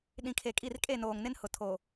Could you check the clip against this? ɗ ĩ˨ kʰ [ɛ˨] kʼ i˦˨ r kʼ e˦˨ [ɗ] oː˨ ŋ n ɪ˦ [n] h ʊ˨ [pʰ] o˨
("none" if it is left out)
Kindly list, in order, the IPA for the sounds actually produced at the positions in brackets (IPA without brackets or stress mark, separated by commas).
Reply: e˨, n, n, tʰ